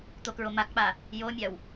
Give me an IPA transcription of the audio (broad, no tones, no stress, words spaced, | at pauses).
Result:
t̪okɹomakk͡pa | jomʲaw